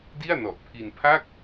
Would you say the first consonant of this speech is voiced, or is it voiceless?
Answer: voiced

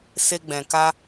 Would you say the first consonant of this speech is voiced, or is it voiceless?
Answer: voiceless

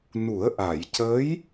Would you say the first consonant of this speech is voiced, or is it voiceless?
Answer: voiced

